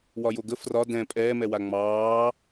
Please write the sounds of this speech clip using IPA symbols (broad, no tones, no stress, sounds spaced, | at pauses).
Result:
w ɒ j o ɡ ə f r ɒ d ɛ̃ pʼ ɛː m ɛ w a ŋ͡m ɑː